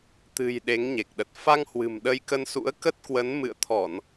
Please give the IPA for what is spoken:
t̪ɨ̤˨˩j ɗe˨˦ŋɲe˨˩k̚ɗə˨˩t̚ fa˧ŋhwɨ̤˨˩m ɗə˧jkə˧nsṵ˧˥ə̯ kə˦˥t̚kwə˨˦n mɨ̰˧˨ə̯t̪ʰɔ˧˩˨n

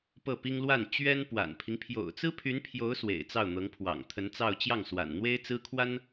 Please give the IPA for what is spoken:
pɤ˥˩pi˥ŋ lwa˥˩n t͡ɕɥɛ˥n pwa̰˨˩npʰi˦ŋ pʰjo̰˨˩ʊ̯t͡sɹ̩˥pʰy˧˥npʰjo˧˥ʊ̯ swḛ˨˩ɪ̯t͡sɑ˥˩ʊ̯n̪ɤ˧˥ŋ pʰwɑ̰˨˩ŋt̪ʰə˧˥nt͡sɑ˥˧ʊ̯ t͡ɕjɑ˥˩ŋswa̰˨˩nn̪we˥ɪ̯t͡sɹ̩˥ kʰwa˥n

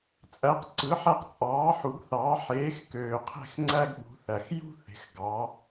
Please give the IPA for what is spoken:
t͡sʼæ˨˥qǀɯ˨˥ħæ˦q t͡sʼɑː˨˥ ħu˨˥ɡθɑː˨˥ ħeː˨˥xkøː˨˩qʰe̤˥˩xŋ͡ǀæ˦ɡ ɓṳ˨˥θæ˨˩x jṳ˦θe̤˨˩x ɡɑ˨˥

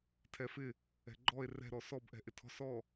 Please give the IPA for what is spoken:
tʰɛfɪ | ɛ̤ɡ͡ǃɔe̯ rɛ̤ɾɔ sɔbʔɛ̤ ʔɪtʰɔ̤s ɔ

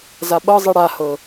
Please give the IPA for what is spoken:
zaɓɤzˤi ɽahɤ

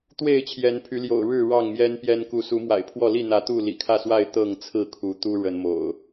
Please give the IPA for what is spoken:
t̪we˥˨ɪ̯t͡ɕʰjɛ˨˦npʰy˨˦ljo̰˨˩ʊ̯ ɻɻ̩˥˨ ɻɑ˥˨ŋmjɛ˦npjɛ˦n ku˨˦su˨˦mwa̰˨˩ɪ̯pʰwɔ˥˨ li˥˨n̪ä˨˦ t̪u˥˨lḭ˨˩ kʰä˥˨swa˥˨ɪ̯ t̪ɤ˥˨ŋ t͡sʰɹ̩˥˨kʰu˨˦t̪u˦ ɻə˨˦nmo̰˨˩ʊ̯

